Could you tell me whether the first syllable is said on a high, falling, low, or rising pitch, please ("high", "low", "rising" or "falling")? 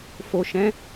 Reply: low